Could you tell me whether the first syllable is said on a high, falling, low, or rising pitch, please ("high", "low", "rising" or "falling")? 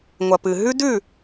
low